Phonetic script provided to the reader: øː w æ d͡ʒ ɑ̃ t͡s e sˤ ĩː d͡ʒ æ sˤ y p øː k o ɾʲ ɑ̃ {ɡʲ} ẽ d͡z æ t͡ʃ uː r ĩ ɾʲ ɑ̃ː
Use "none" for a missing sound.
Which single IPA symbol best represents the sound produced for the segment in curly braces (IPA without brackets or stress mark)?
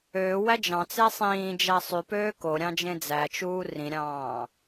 d͡ʒ